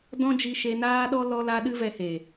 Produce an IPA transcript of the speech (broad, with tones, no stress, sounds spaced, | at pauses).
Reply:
d ɔ̃˦ d͡ʒ i˧ ʃ e˧ n aː˦ ɗ ɔ˦ l ɔ˧ l a˧ ɗ ɨ˦ v ɛ˧ h eː˨